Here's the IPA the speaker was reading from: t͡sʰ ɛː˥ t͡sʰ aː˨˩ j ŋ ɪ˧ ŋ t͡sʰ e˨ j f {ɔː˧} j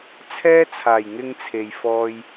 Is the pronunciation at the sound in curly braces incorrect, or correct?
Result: correct